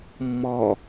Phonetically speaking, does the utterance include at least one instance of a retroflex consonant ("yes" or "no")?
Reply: no